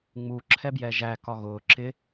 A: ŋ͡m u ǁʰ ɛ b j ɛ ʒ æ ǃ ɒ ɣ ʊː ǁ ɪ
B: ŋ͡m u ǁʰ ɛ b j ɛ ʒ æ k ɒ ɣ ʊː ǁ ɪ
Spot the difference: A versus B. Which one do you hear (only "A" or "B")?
B